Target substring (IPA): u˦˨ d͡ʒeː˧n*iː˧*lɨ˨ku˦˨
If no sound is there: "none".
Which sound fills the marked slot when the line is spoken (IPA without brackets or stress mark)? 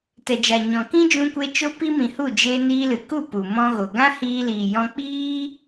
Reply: iː˧